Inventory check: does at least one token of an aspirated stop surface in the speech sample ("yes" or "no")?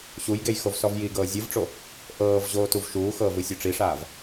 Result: no